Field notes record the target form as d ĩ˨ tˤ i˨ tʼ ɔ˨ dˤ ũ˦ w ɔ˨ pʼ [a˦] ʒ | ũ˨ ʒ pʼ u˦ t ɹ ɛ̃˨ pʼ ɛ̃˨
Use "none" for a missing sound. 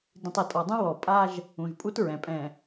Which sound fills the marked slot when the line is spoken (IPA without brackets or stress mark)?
a˦